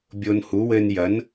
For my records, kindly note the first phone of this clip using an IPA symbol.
bʲ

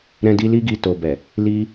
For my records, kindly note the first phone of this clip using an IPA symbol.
ɾ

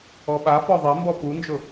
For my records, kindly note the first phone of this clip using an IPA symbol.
ɔ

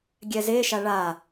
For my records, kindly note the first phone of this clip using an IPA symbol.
ɡʲ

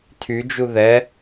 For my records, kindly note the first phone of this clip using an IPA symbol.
tʰ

